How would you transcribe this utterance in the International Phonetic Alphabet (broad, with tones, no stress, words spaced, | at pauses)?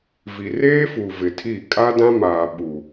vi˨reː˦fu˨ vɪ˨tʰi˦˨ kʼa˦dã˦maː˨ ɓu˨